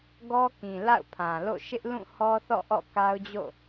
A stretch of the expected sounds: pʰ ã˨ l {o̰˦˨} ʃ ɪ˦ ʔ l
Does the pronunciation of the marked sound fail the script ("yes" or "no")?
no